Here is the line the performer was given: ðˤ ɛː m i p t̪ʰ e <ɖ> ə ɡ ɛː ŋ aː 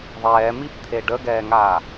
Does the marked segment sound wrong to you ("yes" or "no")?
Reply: no